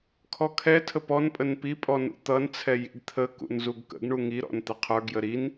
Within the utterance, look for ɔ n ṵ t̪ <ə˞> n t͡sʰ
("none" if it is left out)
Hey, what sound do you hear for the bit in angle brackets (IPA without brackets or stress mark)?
ʌ